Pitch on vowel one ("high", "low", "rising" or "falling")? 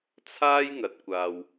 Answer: high